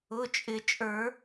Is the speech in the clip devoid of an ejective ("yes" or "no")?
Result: no